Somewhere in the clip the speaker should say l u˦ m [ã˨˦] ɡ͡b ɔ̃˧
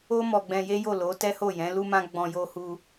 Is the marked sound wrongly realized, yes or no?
yes